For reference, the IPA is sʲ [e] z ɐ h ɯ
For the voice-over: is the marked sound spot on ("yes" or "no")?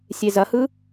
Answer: yes